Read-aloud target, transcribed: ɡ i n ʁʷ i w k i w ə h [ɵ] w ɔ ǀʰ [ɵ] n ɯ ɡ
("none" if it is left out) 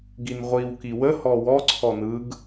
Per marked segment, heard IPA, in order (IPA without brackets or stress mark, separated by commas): ɔ, ɔ